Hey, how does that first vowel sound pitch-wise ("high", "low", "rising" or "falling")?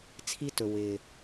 high